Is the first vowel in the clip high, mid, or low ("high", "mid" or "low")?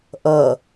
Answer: mid